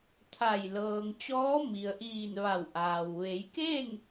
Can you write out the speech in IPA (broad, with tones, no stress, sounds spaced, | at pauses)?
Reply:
t̪ʰ a˧˩ j l ɤː˩ ŋ t͡ɕ ɔː˧˥ m i˩ ə̯ ʔ iː˧˩ n ʋ a˧˩ w ʔ aː˩ w ʋ e˩˧ j k eː˥˨ ŋ